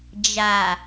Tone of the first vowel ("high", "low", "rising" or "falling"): low